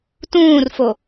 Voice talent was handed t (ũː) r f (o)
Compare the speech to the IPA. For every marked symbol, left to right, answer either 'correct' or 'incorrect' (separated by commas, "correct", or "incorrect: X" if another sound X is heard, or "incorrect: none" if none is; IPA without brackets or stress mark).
correct, correct